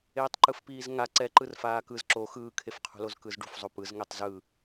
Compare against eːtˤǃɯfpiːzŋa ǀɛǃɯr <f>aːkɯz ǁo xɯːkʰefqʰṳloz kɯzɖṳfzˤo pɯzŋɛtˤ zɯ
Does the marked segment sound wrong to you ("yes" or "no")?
no